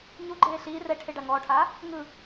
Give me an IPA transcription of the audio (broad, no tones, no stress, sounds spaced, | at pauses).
ɲ u ɡ͡ǃ eː ɬ iː r ɛ ʈʰ e ɖ a ŋ ɔː ʈʰ aː | ŋ ɯ